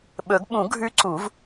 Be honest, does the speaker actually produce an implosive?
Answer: yes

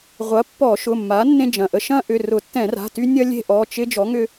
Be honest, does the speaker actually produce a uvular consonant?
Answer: yes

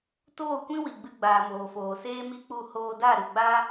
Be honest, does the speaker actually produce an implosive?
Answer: no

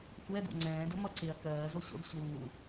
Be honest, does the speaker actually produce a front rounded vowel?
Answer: no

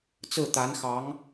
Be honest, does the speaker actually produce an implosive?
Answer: no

